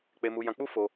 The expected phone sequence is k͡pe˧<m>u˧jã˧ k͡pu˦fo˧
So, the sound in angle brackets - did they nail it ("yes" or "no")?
yes